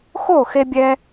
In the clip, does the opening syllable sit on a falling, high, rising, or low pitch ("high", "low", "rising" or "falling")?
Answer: falling